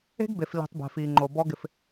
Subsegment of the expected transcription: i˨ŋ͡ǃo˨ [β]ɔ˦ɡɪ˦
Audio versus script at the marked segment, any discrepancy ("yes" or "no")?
yes